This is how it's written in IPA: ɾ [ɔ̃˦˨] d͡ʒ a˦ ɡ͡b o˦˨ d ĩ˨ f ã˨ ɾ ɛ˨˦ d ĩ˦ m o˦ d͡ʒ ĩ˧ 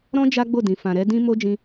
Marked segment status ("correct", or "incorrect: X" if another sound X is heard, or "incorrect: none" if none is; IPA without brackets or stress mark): incorrect: ɔ̃˦